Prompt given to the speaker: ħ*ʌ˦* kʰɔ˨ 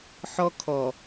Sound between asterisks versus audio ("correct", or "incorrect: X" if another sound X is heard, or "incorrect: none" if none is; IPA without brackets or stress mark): incorrect: ɔ˦